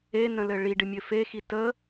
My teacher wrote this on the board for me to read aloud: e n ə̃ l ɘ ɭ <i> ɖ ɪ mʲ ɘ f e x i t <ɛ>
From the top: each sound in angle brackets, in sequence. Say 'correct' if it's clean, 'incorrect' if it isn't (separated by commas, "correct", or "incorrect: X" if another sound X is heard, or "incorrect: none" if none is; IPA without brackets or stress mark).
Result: correct, incorrect: ə